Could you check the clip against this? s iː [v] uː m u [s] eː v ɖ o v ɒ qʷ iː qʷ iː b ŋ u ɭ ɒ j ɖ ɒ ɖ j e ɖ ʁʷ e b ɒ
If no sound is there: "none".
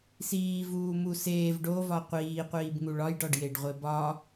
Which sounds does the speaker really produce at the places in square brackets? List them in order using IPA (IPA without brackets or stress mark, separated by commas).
v, s